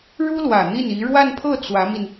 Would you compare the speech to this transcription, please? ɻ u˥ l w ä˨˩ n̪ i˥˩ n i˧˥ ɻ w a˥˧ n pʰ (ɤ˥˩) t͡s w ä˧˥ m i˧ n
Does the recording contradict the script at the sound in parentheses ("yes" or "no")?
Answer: no